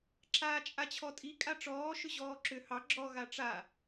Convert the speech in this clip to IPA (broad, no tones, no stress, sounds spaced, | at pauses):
ǁ aː t͡ʃʼ a t͡ɕʰ ɔ tʼ i kʼ a ʈ͡ʂ ɔː ʃ ʏ ʑ ɔː ǁ ʏ h ɑ ɡ͡ǁ ɔ ɣ a ʈ͡ʂ a